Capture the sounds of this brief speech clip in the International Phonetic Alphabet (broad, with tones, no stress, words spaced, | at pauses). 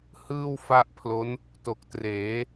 hɯː˥˩w fa˥˩ʔpʰlo˦˥n | to˨˩k̚treː˩˦